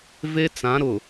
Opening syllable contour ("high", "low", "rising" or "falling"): high